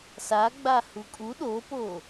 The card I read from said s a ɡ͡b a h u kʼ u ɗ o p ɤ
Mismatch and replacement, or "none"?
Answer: ɤ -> o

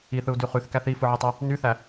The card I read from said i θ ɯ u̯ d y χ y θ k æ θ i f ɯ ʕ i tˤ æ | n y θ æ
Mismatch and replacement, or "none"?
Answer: none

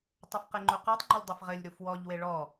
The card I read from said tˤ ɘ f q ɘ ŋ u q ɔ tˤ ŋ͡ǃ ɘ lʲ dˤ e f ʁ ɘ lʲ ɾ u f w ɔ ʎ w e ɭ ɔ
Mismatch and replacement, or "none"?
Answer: ŋ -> ŋ͡ǃ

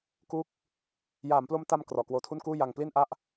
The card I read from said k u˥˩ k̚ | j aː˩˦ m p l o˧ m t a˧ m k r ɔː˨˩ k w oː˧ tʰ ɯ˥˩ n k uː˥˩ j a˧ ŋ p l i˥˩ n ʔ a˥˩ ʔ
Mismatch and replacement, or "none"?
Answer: ɯ˥˩ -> u˥˩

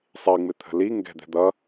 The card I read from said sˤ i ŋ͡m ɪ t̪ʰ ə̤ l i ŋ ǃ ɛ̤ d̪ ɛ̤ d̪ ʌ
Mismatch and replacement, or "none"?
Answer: ǃ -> ɡ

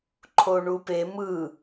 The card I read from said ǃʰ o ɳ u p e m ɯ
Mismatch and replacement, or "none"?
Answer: none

